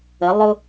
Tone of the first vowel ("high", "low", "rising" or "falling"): rising